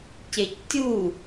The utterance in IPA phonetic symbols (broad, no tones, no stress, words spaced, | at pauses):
cectʲu